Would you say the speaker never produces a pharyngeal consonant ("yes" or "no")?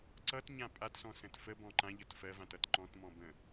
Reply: yes